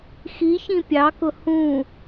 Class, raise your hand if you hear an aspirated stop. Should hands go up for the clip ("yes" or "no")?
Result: no